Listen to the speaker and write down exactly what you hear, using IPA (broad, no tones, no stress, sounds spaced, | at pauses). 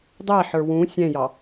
dˤ æ ħ ə˞ w ũ sʲ ɛ̃ j ɑ